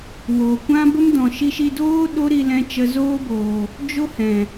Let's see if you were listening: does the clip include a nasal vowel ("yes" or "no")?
yes